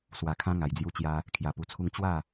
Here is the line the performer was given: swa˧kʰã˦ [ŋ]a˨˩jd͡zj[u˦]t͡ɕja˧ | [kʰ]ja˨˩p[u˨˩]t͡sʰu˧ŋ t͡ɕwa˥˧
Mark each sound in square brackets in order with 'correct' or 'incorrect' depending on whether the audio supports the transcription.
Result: correct, incorrect: u˧, correct, correct

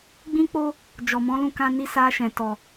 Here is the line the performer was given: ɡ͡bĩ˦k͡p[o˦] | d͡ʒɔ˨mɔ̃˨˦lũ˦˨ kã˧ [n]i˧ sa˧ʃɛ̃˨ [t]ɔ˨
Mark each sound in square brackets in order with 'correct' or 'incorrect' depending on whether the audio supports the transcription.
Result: correct, correct, correct

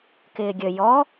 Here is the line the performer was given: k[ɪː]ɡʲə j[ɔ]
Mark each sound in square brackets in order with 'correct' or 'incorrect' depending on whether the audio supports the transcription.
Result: correct, correct

